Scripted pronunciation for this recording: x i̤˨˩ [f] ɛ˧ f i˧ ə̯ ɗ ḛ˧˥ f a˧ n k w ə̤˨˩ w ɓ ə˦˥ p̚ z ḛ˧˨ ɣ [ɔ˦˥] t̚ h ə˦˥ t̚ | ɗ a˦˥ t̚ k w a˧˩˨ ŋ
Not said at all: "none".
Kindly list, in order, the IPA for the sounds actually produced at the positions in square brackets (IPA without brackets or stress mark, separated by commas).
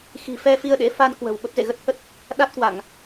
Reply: f, ə˦˥